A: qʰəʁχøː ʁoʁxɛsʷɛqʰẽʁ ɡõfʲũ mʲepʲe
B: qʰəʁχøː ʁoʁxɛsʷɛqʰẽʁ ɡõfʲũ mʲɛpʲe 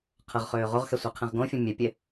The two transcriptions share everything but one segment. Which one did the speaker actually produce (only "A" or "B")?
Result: A